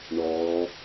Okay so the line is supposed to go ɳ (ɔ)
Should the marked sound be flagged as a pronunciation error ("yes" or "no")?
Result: no